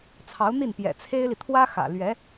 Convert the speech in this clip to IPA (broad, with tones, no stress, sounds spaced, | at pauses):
t͡sʰ ɑ˧˥ ʊ̯ n̪ i˥˩ n p j ɛ̰˨˩ t͡sʰ e˥ ɪ̯ l i˨ t̪ʰ w ä˥ x ä̰˨˩ l ɥ ɛ˧˥